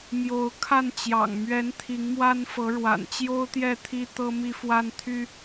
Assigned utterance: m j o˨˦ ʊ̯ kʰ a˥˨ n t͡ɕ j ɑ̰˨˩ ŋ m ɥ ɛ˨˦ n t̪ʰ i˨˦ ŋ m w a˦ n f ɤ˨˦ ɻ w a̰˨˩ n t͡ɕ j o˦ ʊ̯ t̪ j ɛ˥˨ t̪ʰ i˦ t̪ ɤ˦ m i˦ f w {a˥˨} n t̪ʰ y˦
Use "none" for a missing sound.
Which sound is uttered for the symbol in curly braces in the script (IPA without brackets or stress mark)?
a˦